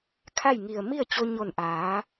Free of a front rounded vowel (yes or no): yes